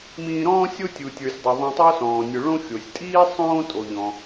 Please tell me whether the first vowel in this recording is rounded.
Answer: no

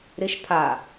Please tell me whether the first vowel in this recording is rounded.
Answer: no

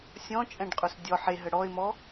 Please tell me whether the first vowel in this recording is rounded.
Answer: yes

